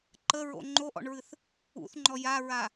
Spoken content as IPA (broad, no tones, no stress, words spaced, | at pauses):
ǃəɹo̰ ŋ͡ǃoʔɔ̰ɳɹɨθ | ṵθŋ͡ǃɔ jaɹa